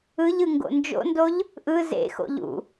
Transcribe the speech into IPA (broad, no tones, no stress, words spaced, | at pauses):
ɯʎɯ ŋɡo̰nd͡ʒo̰ndoʎ | ʔɯ zḛxo̰ʎ ṵ